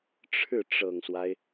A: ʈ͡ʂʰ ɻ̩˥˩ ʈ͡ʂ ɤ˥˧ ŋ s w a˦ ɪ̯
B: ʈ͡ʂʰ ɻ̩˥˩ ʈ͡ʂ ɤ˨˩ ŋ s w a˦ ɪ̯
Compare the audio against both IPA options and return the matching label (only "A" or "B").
B